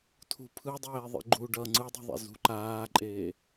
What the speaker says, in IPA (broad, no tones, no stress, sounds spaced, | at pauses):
tʰ ṳ pʰ ɯ dˤ eː ðˤ ḭ ɡ͡ǃ u ɖ ʌ ŋ͡ǀ ɯ dˤ ṳ ðˤ ḛ z ṳ ǃ aː ǃʼ eː